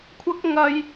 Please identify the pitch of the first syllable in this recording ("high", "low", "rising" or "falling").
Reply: high